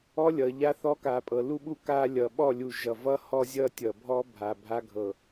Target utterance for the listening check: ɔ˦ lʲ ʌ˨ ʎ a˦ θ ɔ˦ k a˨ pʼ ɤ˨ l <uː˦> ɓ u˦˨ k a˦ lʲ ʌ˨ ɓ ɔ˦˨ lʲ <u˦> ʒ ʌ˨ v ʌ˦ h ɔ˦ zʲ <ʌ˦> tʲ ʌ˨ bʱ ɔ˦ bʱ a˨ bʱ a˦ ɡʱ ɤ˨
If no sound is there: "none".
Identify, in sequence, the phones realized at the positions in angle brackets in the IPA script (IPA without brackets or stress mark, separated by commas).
u˦, u˨, ʌ˦